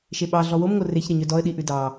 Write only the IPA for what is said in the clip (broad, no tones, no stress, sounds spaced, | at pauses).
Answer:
ʃ e ɓ ɑ ɮ ɔ w o m ŋ o r e ç ɾ ɛ ɲ œ d ɔ ə̯ ɗ i ʔ ʉ d ɑ